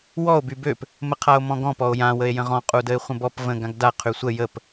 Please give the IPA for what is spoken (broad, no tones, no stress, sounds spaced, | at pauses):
w ɔ o̯ b y b ø p | m ə qʰ a o̯ m ɔ̃ ɡ ɔ̃ p ɔ o̯ j ã w ə e̯ j ə̃ ʁ ɔ̃ qʼ u d ə e̯ χʷ ə̃ b ɔ p v ə̃ ɡ ã ɡ d a qʰ y sʷ ə j ə p